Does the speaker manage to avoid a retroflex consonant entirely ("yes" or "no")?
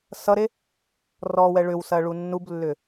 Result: no